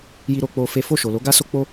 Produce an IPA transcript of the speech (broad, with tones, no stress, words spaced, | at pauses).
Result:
ji˦ɾo˦k͡po˦ fe˦ fo˦˨ʃo˨lo˨˦ ɡa˦so˦k͡po˦